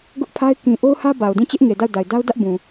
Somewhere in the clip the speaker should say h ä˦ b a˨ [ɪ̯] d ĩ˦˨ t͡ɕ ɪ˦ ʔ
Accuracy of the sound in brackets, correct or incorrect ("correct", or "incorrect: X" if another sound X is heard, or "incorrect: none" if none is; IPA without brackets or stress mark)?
incorrect: ʊ̯